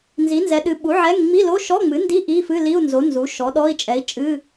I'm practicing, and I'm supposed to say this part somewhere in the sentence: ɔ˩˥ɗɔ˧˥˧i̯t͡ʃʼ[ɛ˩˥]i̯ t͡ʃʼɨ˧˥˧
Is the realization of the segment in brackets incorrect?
no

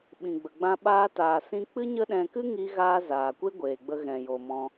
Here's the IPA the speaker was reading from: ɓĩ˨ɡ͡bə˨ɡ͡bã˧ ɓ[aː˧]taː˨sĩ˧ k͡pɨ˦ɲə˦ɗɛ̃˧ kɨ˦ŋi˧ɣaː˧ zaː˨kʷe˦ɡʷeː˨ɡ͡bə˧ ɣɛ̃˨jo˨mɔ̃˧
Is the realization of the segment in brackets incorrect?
no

